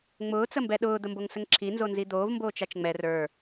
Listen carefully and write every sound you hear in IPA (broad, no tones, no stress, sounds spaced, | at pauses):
ŋ͡m ʊː t͡s ə m b ɛ ɗ ʊː d̪ ə m b o ŋ s ə ŋ ǁʰ i n z o n z i d̪ oː v m b oː t͡ʃ a t͡ʃ ŋ͡m ɛ r ə˞